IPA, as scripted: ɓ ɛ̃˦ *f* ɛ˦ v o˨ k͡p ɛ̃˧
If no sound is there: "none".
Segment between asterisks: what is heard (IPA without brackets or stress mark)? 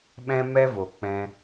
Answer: m